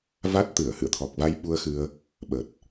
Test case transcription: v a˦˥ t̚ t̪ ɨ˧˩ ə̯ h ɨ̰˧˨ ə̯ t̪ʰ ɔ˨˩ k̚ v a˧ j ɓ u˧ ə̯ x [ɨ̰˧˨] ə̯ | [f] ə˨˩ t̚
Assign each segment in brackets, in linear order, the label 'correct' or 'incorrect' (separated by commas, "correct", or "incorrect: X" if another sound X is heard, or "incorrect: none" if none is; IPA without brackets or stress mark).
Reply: incorrect: ɨ˧, incorrect: ɓ